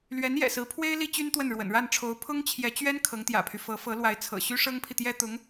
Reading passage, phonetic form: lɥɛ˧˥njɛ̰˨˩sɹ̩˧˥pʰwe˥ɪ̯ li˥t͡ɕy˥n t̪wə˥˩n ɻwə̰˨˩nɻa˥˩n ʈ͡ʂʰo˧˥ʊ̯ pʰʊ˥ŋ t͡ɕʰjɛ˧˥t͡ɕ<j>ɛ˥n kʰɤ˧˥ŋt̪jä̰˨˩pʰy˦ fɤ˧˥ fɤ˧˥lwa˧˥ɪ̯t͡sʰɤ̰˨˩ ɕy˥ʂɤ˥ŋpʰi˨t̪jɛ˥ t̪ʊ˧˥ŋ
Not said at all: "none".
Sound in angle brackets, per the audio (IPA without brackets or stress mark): ɥ